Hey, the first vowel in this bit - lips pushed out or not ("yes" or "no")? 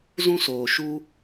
yes